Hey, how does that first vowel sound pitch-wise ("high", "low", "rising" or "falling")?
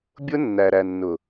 high